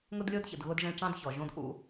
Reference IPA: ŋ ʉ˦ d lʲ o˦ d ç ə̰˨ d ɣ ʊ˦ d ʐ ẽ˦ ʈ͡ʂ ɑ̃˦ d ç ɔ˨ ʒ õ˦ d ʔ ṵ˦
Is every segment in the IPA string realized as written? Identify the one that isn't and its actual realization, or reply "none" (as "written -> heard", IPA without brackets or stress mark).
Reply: ʉ˦ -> ʊ˦